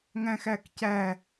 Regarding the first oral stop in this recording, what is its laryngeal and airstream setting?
plain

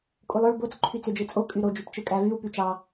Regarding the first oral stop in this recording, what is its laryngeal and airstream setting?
ejective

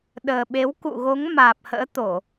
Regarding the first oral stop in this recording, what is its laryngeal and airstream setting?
implosive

